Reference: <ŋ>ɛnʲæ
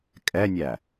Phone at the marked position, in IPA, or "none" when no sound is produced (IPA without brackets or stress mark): kʼ